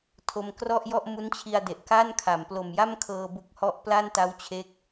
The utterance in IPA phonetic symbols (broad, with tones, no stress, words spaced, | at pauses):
tʰo˧mkrɔ˥˩ʔjɔ˥˩ʔ mu˦˥nt͡ɕʰi˧a̯de˨˩ʔ ka˥˩nkʰa˩˦m plo˨˩mja˥˩mkʰɤː˧ bu˦˥k̚hɔ˥˩ʔ pla˥˩nta˦˥wt͡ɕʰe˦˥k̚